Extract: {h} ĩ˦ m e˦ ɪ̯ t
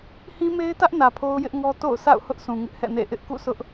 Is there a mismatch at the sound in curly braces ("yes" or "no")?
no